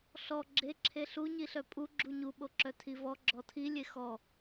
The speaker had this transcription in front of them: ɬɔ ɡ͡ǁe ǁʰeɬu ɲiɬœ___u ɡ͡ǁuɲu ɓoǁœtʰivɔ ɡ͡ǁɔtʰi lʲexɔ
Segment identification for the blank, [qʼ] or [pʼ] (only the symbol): pʼ